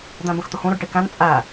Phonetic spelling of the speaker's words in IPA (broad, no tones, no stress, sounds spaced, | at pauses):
d̪ æ̃ b ə̃ x t̪ ʊ h ũ ɾ ʊ ɖ ʈ i k æ̃ n t͡sʼ æ